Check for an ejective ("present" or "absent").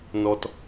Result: absent